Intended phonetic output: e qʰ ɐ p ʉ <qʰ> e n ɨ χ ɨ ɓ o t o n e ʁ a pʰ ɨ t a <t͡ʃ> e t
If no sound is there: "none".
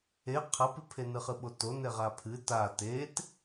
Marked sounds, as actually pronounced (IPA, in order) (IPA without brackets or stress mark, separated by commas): pʰ, t